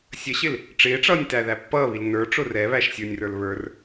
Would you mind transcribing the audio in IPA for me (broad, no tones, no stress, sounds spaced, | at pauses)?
sʲ ə ɕ ɪ l | ʈ͡ʂ ɪː ʈ͡ʂ ʌː nʲ t æ ð æ pː ʌː β i l n ə˞ ʈ͡ʂ ʊ r ɛ β æ ʃ sʲ ə˞ nʲ r ə˞ l β ə˞ r